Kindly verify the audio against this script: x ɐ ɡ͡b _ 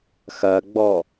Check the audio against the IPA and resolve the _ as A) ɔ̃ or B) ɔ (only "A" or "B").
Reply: B